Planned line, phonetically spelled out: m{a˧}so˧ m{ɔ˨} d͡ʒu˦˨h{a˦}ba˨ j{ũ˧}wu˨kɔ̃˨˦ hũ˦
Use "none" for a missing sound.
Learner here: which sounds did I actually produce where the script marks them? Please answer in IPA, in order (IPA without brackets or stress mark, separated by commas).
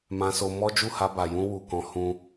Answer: ã˧, ɔ˦, a˧, ũ˧